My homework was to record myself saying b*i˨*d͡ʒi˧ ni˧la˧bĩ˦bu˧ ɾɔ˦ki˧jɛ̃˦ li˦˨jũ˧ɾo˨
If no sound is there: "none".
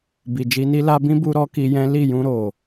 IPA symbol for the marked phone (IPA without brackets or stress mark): i˨